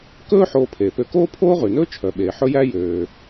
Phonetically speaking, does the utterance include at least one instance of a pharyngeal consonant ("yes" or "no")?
yes